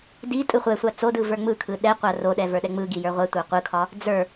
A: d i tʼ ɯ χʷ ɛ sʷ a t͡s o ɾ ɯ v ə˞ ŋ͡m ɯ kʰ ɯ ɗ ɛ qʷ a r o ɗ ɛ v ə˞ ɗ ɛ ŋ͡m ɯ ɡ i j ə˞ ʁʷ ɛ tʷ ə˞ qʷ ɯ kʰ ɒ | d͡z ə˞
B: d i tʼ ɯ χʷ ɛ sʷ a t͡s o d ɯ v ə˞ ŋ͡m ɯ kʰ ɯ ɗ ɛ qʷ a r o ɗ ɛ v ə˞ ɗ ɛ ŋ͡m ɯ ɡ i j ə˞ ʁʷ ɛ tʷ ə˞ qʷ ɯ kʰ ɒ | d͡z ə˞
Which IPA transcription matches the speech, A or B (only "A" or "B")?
B